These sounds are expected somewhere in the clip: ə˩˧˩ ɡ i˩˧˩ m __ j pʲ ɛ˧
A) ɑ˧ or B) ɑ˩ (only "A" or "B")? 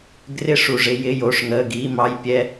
A